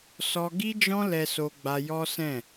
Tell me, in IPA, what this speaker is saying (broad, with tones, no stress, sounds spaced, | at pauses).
s ɔ˧ ɡ i˦ d͡ʒ ɔ̃˦ l ɛ˧ s o˧ ɡ͡b a˧ j ɔ˦ s ɛ̃˦˨